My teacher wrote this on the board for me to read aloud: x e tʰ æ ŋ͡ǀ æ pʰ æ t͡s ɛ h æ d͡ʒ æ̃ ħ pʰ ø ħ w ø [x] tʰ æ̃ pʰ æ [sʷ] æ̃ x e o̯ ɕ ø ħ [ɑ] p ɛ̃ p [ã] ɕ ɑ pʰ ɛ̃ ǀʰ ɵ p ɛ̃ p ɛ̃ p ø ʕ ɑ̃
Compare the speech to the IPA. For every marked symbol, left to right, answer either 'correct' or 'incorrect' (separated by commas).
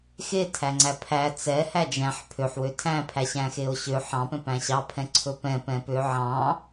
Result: incorrect, incorrect, incorrect, incorrect